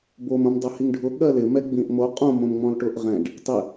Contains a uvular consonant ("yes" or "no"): yes